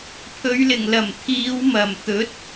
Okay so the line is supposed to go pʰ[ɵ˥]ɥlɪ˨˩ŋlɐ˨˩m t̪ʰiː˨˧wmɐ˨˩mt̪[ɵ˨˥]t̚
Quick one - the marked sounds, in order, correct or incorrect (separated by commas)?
incorrect, correct